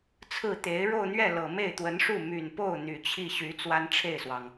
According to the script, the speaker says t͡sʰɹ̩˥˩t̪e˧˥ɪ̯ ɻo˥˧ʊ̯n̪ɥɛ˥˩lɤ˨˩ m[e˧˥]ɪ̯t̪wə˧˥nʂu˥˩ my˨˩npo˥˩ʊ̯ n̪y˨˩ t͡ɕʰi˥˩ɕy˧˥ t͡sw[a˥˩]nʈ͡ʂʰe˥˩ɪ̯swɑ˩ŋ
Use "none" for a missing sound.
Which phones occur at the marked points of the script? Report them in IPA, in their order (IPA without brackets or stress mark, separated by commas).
e˥˩, a˥